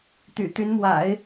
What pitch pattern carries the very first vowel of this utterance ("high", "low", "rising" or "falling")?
low